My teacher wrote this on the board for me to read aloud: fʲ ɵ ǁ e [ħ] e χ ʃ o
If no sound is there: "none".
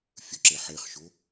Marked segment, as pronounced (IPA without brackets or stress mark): ħ